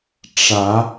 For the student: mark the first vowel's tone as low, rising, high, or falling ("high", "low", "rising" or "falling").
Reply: rising